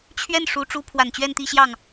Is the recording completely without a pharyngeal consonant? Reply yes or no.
yes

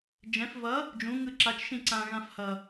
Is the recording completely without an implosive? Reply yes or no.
yes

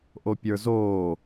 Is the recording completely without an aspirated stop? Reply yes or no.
yes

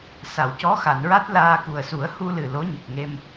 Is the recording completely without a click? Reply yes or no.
yes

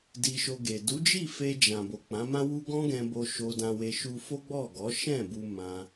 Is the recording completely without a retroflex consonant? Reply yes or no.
yes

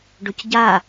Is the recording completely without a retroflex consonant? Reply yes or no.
no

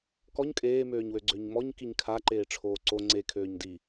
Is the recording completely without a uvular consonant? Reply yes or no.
yes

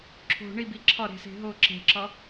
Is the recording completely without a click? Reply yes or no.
no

